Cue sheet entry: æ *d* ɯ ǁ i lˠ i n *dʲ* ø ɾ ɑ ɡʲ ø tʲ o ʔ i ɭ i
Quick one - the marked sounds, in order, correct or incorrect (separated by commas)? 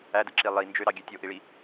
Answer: correct, incorrect